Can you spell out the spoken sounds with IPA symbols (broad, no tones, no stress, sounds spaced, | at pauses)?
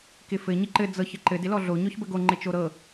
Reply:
k ɪ f ɘ ɲ ɪ ǃ ɘ d͡z ɤ ç ə ǃ ɘ d ɪ l ɔ ɮ o ɲ ɔ ç b ə ɡ o ŋ͡ǃ ɪ t͡ʃ o ɾ ɤ